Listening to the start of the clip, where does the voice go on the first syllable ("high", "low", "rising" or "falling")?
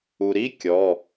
low